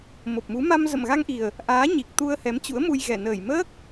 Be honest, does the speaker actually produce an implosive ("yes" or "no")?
no